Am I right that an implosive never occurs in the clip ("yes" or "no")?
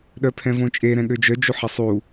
no